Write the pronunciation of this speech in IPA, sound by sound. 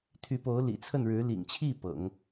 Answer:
t̪ʰ y˧˥ p o˧˥ ʊ̯ l ḭ˨˩ t͡sʰ ə˥˩ n ɻ ɻ̩˧˥ l ḭ˨˩ ŋ t͡ɕʰ i˥˩ p ɤ̰˨˩˦ ŋ

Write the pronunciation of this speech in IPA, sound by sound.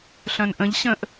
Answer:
ɬ œ̃ n ʔ ə̃ ʎ ɕ ə̃ ʔ

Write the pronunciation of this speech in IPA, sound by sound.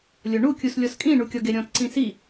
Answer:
lʲ o ɳ u kʲ u s lʲ ɔ s kʼ ĩ ɳ u kʲ ɔ ɡ e ɾʲ ɔ̃ t ǀ ĩ s i

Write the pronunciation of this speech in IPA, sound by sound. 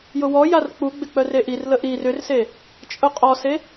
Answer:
j ʊ w ɔ j a r k͡p u ɡ͡b ɪ k͡p œ r e ʔ i r l ə ʔ i r ʏ r s e | t͡ʃʼ ʊ qʼ ɔ s e

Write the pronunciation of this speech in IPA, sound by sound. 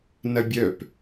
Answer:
n ɐ bʲ œ p

